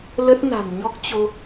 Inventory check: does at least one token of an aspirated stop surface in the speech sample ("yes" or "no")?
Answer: no